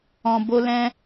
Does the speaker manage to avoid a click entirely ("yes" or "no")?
yes